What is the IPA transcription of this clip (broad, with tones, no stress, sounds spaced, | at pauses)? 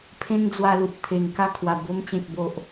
pʰ ẽ˦ ŋ d͡z w a˧ l u˨ t̚ t̪ʰ e˨˩ ŋ k a˥˧ kʰ w a˨˩ b o˧ m t͡ɕ ẽ˨ k̚ b o˨ ʔ